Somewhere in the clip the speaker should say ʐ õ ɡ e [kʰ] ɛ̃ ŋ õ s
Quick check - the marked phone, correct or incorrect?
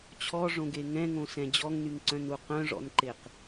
incorrect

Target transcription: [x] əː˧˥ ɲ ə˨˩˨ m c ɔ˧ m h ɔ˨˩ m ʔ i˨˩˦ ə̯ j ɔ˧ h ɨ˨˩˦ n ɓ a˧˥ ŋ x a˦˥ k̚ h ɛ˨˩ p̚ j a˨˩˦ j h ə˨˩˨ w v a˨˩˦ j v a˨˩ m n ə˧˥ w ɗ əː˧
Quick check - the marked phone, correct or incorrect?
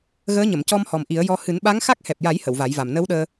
incorrect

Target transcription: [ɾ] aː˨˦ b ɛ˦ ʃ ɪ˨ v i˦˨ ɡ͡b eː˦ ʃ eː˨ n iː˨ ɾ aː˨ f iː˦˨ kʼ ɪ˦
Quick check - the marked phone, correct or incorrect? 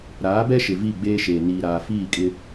correct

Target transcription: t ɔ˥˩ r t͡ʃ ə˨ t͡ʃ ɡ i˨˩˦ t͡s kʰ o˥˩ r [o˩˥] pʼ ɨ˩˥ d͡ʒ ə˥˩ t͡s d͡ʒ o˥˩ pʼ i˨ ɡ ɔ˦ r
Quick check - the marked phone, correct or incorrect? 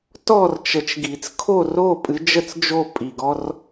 incorrect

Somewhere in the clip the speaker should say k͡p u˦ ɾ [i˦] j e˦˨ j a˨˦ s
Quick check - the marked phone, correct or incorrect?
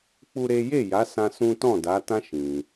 incorrect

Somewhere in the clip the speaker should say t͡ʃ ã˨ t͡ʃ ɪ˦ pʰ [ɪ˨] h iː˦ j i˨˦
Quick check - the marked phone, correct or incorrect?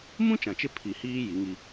incorrect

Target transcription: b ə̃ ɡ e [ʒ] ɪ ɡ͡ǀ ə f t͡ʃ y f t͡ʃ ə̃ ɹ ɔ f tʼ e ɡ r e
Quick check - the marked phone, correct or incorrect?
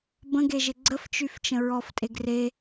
correct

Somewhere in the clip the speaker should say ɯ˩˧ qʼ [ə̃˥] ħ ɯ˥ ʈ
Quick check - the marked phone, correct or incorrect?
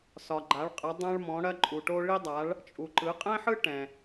incorrect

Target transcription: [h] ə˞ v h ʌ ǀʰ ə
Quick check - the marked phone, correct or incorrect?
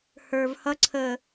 correct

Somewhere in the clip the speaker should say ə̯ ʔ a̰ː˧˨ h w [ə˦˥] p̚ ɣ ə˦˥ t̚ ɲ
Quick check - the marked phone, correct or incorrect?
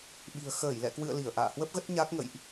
correct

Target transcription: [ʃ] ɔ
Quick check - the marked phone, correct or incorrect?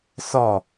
incorrect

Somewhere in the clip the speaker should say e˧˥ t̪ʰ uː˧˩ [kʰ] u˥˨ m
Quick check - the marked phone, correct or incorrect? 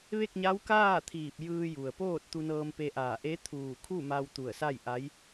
correct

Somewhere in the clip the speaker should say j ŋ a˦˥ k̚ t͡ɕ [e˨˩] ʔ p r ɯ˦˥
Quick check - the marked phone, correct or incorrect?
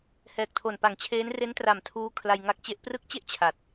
incorrect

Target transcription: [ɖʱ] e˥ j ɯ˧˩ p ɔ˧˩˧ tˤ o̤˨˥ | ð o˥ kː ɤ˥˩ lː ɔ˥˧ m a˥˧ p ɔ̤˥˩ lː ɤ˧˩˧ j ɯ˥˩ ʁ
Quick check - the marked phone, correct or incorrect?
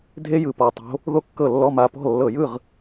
incorrect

